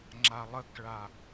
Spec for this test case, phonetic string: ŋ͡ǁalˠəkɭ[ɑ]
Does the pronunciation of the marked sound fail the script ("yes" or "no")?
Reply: yes